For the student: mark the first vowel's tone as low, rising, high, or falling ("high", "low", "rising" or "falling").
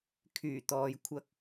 low